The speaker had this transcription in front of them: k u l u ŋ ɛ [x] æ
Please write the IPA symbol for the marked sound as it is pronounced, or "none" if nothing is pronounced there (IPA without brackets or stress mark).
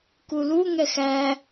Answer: x